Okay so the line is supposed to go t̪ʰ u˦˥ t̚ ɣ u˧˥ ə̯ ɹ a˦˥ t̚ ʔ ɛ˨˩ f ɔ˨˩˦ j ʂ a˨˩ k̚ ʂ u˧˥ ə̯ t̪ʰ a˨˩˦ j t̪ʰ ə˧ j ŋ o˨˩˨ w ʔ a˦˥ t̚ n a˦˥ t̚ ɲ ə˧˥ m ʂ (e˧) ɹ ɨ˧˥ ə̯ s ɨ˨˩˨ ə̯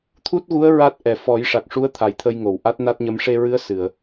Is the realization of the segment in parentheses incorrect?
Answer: no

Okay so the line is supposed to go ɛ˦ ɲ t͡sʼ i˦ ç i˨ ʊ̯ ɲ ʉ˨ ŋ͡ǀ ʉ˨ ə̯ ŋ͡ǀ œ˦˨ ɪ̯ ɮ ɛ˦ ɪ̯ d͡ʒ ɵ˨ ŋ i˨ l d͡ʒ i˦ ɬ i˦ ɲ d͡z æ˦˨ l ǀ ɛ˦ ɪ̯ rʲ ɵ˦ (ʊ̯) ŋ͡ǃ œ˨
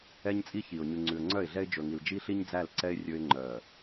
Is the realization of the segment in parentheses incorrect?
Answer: yes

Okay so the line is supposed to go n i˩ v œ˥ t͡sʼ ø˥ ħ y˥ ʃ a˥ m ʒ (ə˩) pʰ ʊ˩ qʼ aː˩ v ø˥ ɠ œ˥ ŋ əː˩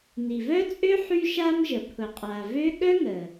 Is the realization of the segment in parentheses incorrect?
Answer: no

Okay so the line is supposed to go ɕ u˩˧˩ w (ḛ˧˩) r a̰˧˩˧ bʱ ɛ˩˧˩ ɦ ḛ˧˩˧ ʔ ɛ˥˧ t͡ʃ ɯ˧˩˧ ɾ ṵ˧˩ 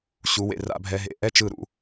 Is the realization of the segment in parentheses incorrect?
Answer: no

